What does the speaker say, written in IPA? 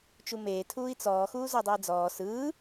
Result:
t͡ʃumeː tʰuːi̯t͡sɔː xuːzɔdˤɯi̯d͡zɔː sɯː

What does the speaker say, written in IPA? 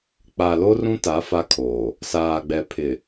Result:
k͡pa˨lo˦rũ˦ta˨˦ fa˦kʰoː˨ | saː˨ɡ͡bɛ˨pʰɪ˨

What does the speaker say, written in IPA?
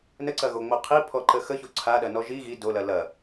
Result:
nəǀɐɣoŋ͡mo qʰipʰɔǃə xəço ǀʰaɗɐnɔ ʒi ɣi dolɐ lɐ

